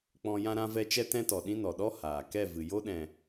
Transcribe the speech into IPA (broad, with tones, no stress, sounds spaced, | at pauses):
k͡p ɔ̃˧ j ã˧ ɾ ã˧ v ɛ˧ t͡ʃ ɛ˦ t ɛ̃˦ t ɔ˨ ɗ ĩ˦ n ɔ˨ ɗ ɔ˦ h aː˨ k ɛ˦˨ v ɨ˨ j o˦ ɗ ɛ̃˨